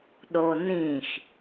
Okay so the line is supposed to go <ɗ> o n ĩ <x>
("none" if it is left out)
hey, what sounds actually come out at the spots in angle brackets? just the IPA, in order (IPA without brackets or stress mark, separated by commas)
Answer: ɗ, x